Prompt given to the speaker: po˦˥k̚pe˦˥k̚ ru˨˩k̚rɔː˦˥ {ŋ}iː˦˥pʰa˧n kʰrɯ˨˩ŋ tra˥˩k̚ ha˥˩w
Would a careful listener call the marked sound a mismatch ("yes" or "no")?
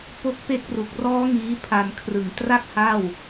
no